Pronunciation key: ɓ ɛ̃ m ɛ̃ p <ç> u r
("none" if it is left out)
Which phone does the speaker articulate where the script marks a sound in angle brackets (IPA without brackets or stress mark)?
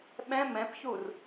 ç